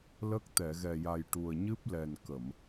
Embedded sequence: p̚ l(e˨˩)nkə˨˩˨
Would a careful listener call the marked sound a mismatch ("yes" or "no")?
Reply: yes